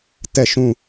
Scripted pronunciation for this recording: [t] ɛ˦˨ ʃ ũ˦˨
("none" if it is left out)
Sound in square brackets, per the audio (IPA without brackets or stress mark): t